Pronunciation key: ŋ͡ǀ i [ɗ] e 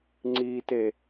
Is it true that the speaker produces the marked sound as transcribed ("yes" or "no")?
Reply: no